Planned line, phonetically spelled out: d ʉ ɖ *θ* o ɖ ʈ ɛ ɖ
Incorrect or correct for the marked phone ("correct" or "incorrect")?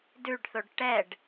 correct